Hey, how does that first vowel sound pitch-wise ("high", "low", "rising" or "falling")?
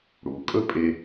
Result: low